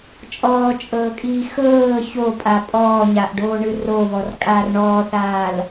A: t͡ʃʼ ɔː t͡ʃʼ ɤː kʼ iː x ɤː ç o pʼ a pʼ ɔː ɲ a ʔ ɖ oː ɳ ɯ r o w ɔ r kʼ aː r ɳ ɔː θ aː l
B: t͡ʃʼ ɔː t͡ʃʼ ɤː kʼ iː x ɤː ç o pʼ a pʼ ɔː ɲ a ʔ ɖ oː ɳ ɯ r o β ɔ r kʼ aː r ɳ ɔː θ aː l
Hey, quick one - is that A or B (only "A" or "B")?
B